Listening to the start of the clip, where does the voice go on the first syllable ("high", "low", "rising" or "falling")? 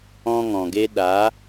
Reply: high